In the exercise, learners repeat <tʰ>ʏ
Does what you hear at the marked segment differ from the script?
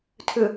no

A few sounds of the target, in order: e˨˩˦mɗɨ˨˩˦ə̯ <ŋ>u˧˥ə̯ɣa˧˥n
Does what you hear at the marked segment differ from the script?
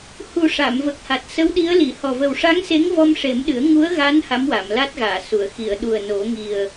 no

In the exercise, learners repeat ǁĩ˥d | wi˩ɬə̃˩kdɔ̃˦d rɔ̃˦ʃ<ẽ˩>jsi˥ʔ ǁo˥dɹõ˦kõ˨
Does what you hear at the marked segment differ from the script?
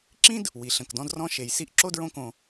yes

